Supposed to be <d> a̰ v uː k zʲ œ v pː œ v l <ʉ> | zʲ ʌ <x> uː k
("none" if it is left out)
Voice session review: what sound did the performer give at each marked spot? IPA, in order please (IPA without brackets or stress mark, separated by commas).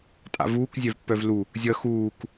tʼ, u, x